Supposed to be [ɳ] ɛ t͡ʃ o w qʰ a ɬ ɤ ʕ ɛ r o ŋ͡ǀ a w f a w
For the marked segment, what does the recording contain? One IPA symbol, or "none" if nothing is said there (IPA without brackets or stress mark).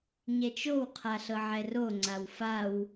ɲ